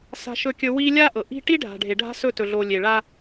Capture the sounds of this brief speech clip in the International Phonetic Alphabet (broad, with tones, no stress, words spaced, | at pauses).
sa̤˨ʃɵ˨kʲɵ˨ wi˦ lʲa˦ʔɤ˨ ʔi̤˦ ʈi˦ɖʱa̤˨ɖʱe˨ ɖʱa̤˦sɵ˦˨tɵ˨ ɮo˨lʲe˨ɭa˦